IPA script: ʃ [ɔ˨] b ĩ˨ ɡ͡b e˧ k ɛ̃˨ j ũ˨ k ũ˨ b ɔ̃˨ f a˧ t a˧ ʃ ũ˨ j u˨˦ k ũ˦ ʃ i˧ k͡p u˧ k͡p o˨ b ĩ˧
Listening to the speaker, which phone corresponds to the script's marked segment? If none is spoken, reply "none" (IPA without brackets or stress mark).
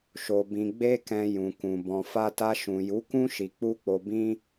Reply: o˨